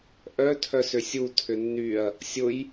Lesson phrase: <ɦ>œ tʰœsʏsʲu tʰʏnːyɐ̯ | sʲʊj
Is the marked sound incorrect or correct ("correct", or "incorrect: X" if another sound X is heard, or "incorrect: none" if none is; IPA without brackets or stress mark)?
incorrect: ʔ